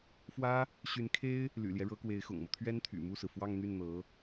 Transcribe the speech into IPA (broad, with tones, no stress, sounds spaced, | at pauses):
f w ä˥ | ɕ y˧˥ n kʰ e˥ ɪ̯ | l y̰˨˩ l j ɛ˦ ɻ ɤ˧˥ k w e˧˥ ɪ̯ x ʊ̰˨˩ ŋ m ɤ˦ t̪ʰ ɥ ɛ˥ n t̪ʰ y̰˨˩ m u˥˩ s ɹ̩˩ f w ɑ˥˧ ŋ n̪ y˥˩ n n̪ ɤ˧˥